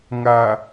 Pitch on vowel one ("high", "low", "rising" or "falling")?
low